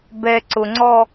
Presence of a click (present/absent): present